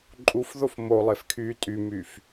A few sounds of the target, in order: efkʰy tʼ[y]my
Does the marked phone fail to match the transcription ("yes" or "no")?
no